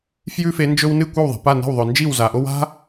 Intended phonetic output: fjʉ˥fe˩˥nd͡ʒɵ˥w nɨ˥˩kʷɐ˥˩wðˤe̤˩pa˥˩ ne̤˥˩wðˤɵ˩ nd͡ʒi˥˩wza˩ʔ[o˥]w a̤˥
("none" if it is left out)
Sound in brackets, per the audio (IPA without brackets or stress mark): o˥